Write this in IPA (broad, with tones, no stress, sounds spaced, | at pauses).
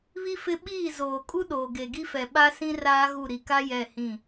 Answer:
β i˦ f ɪ˦ ɓ iː˦˨ z oː˨ kʼ u˦ ɗ oː˨ ɡ e˨ ɡ i˦ f ɛ˨ ɓ a˦ s ĩ˦ r aː˦ ɣ u˦˨ ɾ i˨ k a˦ j ɛ˦˨ h ĩ˦˨